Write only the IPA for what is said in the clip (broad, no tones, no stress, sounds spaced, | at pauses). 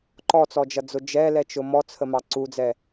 ǃ ɔ t͡s ɔ d͡ʒ ʌ d͡z ʊ d͡ʒ ɛ l ɛ t͡ʃ ʊ m ɔ t͡sʰ ə m ɑ ǀ u d͡z ɛ